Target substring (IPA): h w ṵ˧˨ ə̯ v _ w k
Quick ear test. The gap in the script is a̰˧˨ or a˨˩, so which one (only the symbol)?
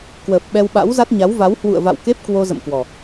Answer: a̰˧˨